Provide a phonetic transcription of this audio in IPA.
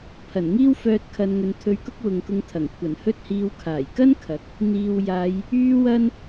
pʰ ɐ˨˩ n ŋ iː˥ w f œː˧ t̚ kʰ ɐ˧ n ŋ ɵ˨ n t̪ʰ ɵ˧ ɥ k ʊ˥ k̚ w ʊ˨ ŋ k ʊ˧ ŋ t̪ʰ ɐ˨˩ ŋ kʷʰ ɐ˨˩ n h ɵ˥ t̚ h iː˧ w kʰ aː˨˩ j k ɐ˥ n kʰ ɐ˨˥ k̚ | n̪ iː˨ w j aː˨˧ j | yː˧ w ɐ˥ n

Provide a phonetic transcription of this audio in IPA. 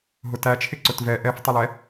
ɦ ʊ t æ t͡ʃʰ ɪ ǀ ʊ t v ɛ ʔ ɛ f tˤ ɪ l ɛ

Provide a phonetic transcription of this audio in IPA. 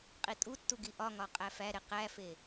qʼ i tʼ u tː u ɡ i ʔ ɒ ŋ ɒ qʼ æ f æ ɾ e q æ f e

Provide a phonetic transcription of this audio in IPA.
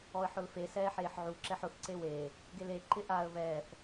ɔ ə̯ ħ ʊ l f e s ɛː ħ eː ħ ʕ u ǁ ɛ ħ ʊ θ ǀ e w eː | ɡ e l e ǃ ɪ ʔ a ə̯ β ɛː θ

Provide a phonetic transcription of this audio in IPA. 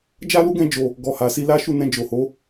d͡ʒ a˦ l u˦ ɡ ɛ̃˧ d͡ʒ o˨ | ɡ ɔ˨ h a˨ s i˧ l a˦ ʃ u˦˨ n ɛ̃˧ d͡ʒ o˨ h o˨˦

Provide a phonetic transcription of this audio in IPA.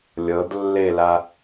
lʲ ɤ d lː e l a

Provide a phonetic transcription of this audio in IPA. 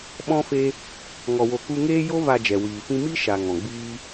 ɓ ɔ̃˧ f e˧ | ŋ ɔ˨ w o˨ k u˧ ŋ eː˦ j o˧ v a˨ d͡ʒ ɛ˨ w iː˨ f ĩ˦ m i˦ ʃ a˨ ŋ ɔ̃˨ ɡ͡b iː˦

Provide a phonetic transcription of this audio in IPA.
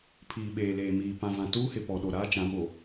pʰ iː˨ ɓ eː˨ l eː˨ m iː˨ p ã˨ v ã˨ t uː˦ h ɪ˨ p ɔ˨ ɗ o˨ ɾ aː˦ t͡ʃ ã˨˦ ɓ o˨

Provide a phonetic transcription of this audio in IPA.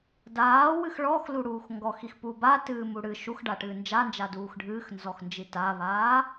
d aː w ɨ x ɭ ɔ x l u ɽ uː x ŋ ɡ ɔ x i x p uː b a t ɨː m u ɽ ɨ ʃ u x ɖ a ʈ ɨː n d͡ʒ a n d͡ʒ a d uː x ɖʱ ɨː x n z ɔ x n d͡ʒ i t a β aː

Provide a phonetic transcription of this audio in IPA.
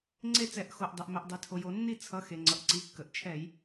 ŋ͡ǀ e˥˨ t͡s ɛ˧˩˧ ʔ x o˩˧˩ ʔ dˤ ɛ˩ ʔ m ɛ˩ ʔ dˤ i˩ tʰ o˩ j o˧˩˧ nː i˥˨ t͡sʰ ʌ˩˧˩ x e˩ ŋ͡ǀ ʌ˩ ʔ ǀ i˩˧˩ kː ə˩ ʔ t͡ʃʰ ɛ˧˩˧ j

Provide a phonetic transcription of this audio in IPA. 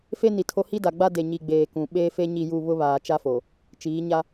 f e˦ n i˨ tʰ o˦ h i˦ d a˨ ɡ͡b a˦ d e˨ ɲ i˨ ɡ͡b eː˨ k ũ˨ ɓ eː˦ f e˦ ɲ i˦˨ j u˦˨ β ʊ˦ β aː˨ t͡ʃ a˦ f o˨ | t͡ʃ iː˨˦ ɲ a˦

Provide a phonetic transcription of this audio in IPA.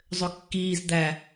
zˤ ø kː iː z d̪ æ

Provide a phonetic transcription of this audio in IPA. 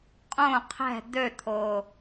qʼ õ qʰ ɛ̤ d̪ ø t̪ʰ o

